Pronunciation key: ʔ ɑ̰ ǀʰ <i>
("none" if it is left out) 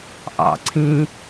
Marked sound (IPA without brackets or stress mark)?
ĩ